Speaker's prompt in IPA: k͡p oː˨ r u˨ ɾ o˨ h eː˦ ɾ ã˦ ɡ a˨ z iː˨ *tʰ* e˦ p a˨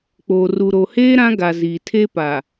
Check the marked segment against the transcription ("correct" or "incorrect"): correct